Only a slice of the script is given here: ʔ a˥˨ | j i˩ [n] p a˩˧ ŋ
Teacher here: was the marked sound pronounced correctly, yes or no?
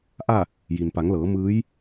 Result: yes